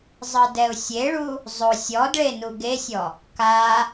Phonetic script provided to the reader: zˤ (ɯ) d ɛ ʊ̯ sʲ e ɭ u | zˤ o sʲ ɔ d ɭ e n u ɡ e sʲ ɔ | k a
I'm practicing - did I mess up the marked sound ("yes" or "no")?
no